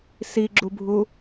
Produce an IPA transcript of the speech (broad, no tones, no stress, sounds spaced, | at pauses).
s i ɡ͡ǁ u bʱ u